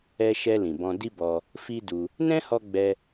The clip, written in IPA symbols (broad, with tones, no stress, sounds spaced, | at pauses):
ɛ˧ ʃ ɛ˧ l ĩ˨ b ɔ̃˧ d i˦ b ɔ˧ | f i˦ d u˧ | n ɛ̃˦ h ɔ˧ ɡ͡b ɛ˧